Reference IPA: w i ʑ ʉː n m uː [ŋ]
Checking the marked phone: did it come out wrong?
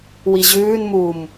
yes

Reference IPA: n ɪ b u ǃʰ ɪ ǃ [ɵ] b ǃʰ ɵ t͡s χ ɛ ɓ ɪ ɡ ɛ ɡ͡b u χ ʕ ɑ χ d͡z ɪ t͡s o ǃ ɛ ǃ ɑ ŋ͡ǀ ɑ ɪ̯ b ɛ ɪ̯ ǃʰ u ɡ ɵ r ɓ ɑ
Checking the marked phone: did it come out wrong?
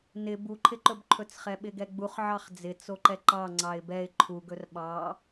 no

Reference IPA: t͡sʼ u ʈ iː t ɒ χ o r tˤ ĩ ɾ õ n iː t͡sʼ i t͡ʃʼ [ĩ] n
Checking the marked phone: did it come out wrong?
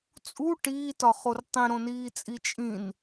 no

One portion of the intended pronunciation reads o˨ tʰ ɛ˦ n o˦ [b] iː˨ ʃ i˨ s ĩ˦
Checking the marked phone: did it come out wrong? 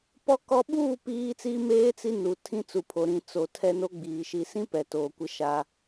yes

